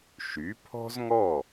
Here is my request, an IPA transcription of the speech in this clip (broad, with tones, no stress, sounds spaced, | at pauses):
ʃ y˩˥ pʰ ɔ̤˥ z ŋ ɔ˥˩